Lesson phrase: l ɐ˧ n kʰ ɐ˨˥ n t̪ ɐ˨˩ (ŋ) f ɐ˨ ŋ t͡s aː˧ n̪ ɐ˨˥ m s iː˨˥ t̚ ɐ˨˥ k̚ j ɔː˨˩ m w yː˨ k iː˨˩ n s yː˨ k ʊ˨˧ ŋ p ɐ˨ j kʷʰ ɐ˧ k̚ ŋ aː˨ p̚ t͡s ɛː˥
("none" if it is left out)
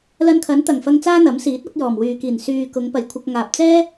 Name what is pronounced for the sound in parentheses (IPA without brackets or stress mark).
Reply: ŋ